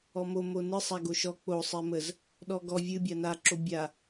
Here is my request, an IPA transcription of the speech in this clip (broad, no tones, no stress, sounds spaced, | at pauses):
ɔ m o m o n ɨ sˤ a ɡ o ʃ ɔ k͡p o sˤ ɛ m ə z | ɗ ɔ ɡ ɔ vʲ ɨ bʲ a n a ǁ o bʲ a